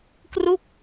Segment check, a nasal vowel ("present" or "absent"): absent